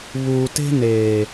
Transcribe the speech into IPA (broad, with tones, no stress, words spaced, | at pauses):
βuː˨ te̤˦neː˨